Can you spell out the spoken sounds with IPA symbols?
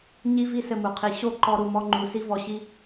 ɲ i˦ v i˦ s ɘ˧ m u˨ qʰ i˨ ɕ o˦˨ ǃ ɔ˧ ɾ u˧ m ɔ˦ ŋ͡ǃ u˧ s i˦ v ɔ˧ ɕ i˦

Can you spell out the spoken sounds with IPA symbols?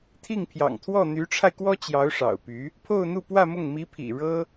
t̪ʰ i˥˩ ŋ pʰ j ɑ̰˨˩ ŋ t̪ʰ w ɔ˥˩ n̪ y˧˥ ʈ͡ʂʰ a˧ ɪ̯ k w ɔ˥ t͡ɕ j ɑ˧˥ ʊ̯ ʂ ɑ̰˨˩ ʊ̯ p y˧˥ | pʰ o˥˧ ʊ̯ n̪ u˥˧ p w ä˥˧ m ʊ˥˩ ŋ m i˧˥ pʰ ḭ˨˩ ɻ ɤ˥

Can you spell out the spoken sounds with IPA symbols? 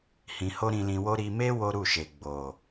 h ĩ˧ h o˦ ɾ ĩ˧ l ĩ˧ w o˦ ɾ i˧ m e˦ w o˦ ɾ u˦˨ ʃ e˨ ɡ͡b o˨

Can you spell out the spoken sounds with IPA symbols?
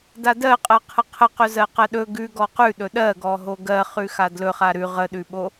d a d ɜ qʼ ɜ qʰ ə qʰ ə q ɵ z ɜ q ɜ ɗ ɵ ɡ ʉ ɡ ɔ q ʉ ɗ ɵ ɗ ɜ ɡ ɔ ɦ o ɡ ɜ χ ʉ x a d l ɵ χ a ɾ ʉ ʁ ə ɗ ʉ ɓ o

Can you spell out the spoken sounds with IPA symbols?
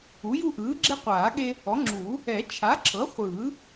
u˩˥ j u˦ ʔ ɯː˩˥ ɡ͡ǁ e˦ qʷ aː˨˩˦ ɠ e˦ | ɔ˩˥ ŋ͡ǁ uː˨˩˦ | ɛ˨˩˦ t͡ʃʰ a˩˥ ǁʰ ɤ˩˥ χʷ ɯː˨˩˦

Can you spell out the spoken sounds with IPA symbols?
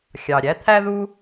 xʲ ɑ˩ ɾʲ æ˥ t̪ʰ æ˥ ð u˥

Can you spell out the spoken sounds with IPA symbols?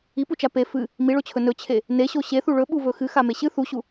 i p u t͡ʃ a p e f ɨ | m i ɭ o t͡ɕʰ ɵ n ɵ t͡ɕʰ e | n e ɕ o ɕ e θ u ɭ ɵ ɓ u v ɵ x ɨ x a m e ɕ ɨ θ u ɕ u

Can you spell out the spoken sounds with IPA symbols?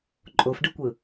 ǃʼ o f ɖ ɯ kʷ ɯ

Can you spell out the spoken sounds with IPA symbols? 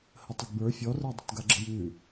h ə tˤ ə ɡ b ə˞ fʲ ɔ r ə˞ dˤ ə̤ t ɡ a ɡ͡ǁ ə̤ j ʉ

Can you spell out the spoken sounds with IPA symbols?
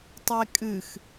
tˤ e kʼ ɨ x

